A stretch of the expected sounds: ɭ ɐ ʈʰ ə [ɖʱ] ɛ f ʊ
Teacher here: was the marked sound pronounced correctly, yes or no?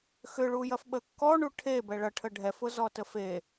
yes